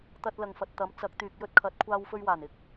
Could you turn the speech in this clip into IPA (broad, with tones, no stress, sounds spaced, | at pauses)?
t̪ ɐ˧ t̚ l ɐ˨ ŋ f ɐ˨ t̚ t̪ ɐ˨˥ m t͡s ɐ˨˥ k̚ t̪ yː˨ k̚ j ɵ˥ t̚ kʰ ɐ˨˥ t̚ kʷʰ aː˧ w f ɵ˧ ɥ w aː˨˩ n ɪ˨˥ k̚